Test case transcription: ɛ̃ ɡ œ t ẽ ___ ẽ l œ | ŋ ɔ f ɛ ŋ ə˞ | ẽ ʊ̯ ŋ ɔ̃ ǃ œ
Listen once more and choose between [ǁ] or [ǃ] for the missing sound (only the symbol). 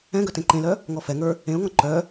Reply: ǃ